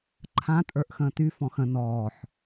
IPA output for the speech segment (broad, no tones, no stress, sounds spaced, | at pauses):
ǃʰ ã tʼ ə˞ ʔ x ə̃ː t y f ɔ̃ x ə̃ n ɔː ħ